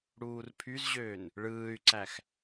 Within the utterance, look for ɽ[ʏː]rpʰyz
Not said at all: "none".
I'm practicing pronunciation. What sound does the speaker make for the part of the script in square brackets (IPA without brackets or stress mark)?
uː